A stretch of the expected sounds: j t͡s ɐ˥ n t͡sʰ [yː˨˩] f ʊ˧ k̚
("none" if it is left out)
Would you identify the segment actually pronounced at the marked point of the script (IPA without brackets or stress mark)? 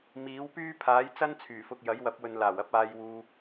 yː˨˩